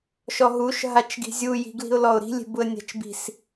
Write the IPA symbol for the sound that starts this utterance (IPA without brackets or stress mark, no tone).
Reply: ʃ